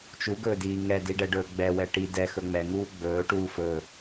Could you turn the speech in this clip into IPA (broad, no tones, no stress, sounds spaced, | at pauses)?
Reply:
t͡ʃ u ɡ ɵː d iː ŋ ɛ d i ɖ ɛ ɖ ɵː ɡ͡b ɛ w ɛ ʈ i d ɛ x ɵ ŋ͡m ɛ ŋ uː ɡ͡b ɵː ʈ uː f ɵ